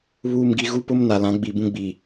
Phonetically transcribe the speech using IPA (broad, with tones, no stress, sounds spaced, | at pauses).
β uː˨ m ɡ i˨ ɣ u˦ p ʊ˦ m n a˨ l ã˨˦ ɡ͡b i˨ b ũ˦ ɡ͡b iː˨